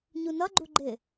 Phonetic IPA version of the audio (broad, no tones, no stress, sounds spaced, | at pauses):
ɲ u n ʌ ɡ͡ǃ u ɡ͡ǃ ɪ